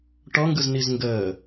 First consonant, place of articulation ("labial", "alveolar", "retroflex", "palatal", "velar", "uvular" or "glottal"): retroflex